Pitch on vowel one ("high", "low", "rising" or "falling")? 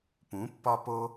rising